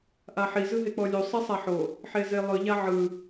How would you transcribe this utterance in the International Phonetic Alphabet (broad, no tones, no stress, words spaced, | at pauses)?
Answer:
ʔaħi zɯɦek͡pɔlʲu sˤisˤaħo | ħezelˠɯ ʎaʕɯ